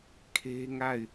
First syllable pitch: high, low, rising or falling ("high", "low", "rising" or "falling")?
high